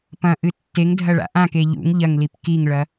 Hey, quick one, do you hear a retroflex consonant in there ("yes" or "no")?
yes